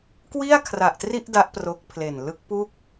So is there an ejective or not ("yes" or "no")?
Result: no